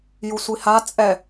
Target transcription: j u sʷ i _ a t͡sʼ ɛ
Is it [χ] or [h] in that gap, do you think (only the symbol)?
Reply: h